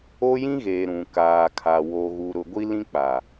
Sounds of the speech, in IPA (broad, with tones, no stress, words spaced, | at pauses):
o˦jĩ˦ɣeː˨ ɾũ˨ kaː˨kʰa˨ wo˨ɣu˨ɾʊ˨ ɡʷi˦lĩ˦k͡pa˨